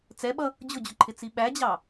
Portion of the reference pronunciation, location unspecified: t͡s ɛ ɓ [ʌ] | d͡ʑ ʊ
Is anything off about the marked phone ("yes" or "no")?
no